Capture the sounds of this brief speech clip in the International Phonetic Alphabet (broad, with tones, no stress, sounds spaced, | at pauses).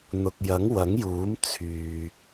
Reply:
n̪ ʊ˨ k̚ j ɐ˨˥ ŋ w ɐ˨˥ ŋ j uː˨˥ m t͡sʰ yː˨